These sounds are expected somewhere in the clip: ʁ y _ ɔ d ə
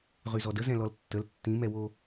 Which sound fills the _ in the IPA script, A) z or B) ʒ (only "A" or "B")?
A